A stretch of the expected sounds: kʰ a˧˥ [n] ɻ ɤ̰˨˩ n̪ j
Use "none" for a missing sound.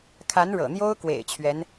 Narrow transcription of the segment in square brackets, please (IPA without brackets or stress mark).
n